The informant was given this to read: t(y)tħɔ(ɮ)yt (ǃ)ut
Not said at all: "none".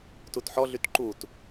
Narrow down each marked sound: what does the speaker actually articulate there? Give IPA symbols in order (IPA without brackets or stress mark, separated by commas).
u, ɮ, ǃ